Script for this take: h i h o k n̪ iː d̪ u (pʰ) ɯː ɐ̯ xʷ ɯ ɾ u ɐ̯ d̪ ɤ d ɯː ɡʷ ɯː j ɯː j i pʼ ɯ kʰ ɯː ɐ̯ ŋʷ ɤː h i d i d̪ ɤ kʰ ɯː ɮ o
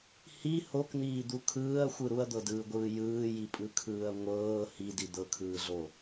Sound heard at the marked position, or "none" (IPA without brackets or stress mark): kʰ